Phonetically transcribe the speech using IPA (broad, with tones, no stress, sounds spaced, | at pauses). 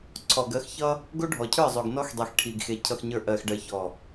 ǀʰ ɔ˨ ɡ ɜ˨˦ x ç ʌ˦ | ɡ o˦ ɖʱ ɔ˨ cʰ ə˞˦˨ zˤ o˨ ɡ n ɔ˦ x dˤ i˨ x ʈʰ i˨ ɡ x e˨ cʰ ʌ˨ x ɲ ə˞˨ ʔ ɜ˨ x ɖ ɜ˨ ç ɔ˨